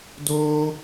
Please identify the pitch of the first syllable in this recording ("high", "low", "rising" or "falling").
high